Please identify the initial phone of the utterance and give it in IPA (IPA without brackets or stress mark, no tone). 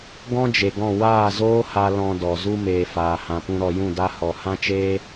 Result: ɡ